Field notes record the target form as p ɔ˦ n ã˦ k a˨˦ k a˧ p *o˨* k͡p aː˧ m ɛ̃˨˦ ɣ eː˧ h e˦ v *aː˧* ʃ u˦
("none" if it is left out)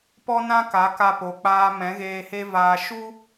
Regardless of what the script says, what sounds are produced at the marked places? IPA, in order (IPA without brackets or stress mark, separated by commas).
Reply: o˨, aː˧